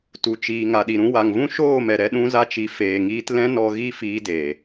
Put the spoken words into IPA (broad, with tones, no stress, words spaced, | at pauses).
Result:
tu˨ t͡ʃiː˨ ŋa˨ɗi˨ɾũ˧ wa˨ŋvũ˦ʃoː˦˨mɛ˨ ɾɛ˧ɗũ˧za˧t͡ʃi˨ feː˨ŋiː˧t lɛ̃˦nɔ˧ɣi˦˨fiː˧ deː˨